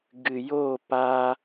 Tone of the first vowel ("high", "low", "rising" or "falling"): low